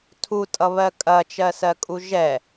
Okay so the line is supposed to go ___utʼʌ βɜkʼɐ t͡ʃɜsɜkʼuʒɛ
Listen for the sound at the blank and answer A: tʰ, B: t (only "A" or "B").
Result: A